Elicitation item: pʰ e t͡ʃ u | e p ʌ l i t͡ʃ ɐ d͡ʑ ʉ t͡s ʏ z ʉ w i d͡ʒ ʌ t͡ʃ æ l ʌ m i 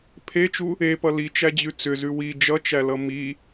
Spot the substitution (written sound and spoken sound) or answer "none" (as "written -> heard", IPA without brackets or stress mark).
ɐ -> æ